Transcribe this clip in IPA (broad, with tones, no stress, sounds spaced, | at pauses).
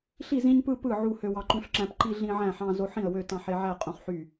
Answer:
ɬ i˥˨ z ĩ˦ ɲ p ɯ˦ p ɯ˥˨ ʕ u˦ h ø˦ w ɑ˦ ǃ ũ˦ ɬ ǁ æ̃˦ p ǃ i˦ ɮ ĩ˦ ʕ æ̃˥˨ ħ ɑ̃˦ z o˦ ħ ĩ˥˨ ə̯ w ø˥˨ t ɑ̃˦ ħ e˦ ʕ æ˥˨ qʼ ũ˦ χ ħ y˥˨